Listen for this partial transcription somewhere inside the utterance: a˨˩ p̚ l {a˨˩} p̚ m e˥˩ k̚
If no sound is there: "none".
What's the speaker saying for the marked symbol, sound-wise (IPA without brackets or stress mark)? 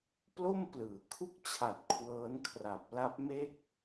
a˦˥